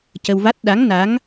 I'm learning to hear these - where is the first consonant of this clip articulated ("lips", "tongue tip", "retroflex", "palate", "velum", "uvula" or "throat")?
palate